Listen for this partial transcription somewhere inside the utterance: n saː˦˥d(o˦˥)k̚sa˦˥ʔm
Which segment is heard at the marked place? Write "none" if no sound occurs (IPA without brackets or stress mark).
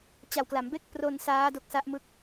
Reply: o˦˥